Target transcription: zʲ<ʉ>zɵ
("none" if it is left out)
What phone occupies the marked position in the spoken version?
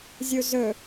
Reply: u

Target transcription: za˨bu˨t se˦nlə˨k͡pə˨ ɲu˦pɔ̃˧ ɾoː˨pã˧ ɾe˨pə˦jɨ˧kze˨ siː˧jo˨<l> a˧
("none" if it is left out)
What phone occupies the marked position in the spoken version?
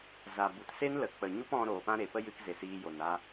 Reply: n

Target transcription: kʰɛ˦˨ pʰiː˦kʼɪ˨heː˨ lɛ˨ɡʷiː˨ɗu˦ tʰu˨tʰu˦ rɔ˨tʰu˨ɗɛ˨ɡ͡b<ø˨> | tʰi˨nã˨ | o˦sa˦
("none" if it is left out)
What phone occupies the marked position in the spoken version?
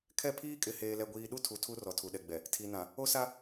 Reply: ɛ˨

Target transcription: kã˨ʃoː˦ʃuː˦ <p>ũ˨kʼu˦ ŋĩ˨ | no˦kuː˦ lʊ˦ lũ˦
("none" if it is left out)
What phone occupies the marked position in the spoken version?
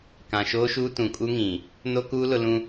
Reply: t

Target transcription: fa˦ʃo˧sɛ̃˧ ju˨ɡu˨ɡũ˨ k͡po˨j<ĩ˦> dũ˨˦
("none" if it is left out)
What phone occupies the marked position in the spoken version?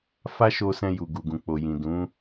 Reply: ĩ˨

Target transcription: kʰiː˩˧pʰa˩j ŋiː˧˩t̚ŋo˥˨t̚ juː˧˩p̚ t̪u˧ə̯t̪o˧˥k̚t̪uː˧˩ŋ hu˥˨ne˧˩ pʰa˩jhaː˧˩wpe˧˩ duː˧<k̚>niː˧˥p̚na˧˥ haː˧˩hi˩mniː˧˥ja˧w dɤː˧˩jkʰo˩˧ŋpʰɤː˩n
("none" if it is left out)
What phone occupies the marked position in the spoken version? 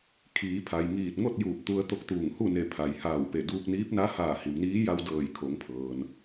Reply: k̚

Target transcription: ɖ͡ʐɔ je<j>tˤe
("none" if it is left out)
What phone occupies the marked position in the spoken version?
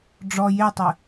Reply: none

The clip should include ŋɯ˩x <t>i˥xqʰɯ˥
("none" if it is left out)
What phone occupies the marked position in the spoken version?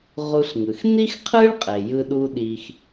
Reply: n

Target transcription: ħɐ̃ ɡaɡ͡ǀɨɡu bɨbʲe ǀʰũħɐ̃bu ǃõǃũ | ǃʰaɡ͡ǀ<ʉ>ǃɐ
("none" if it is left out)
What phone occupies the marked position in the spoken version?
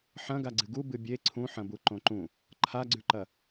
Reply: ʉ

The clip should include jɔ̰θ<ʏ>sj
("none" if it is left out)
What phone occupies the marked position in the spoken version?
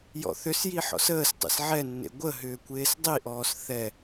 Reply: ʏ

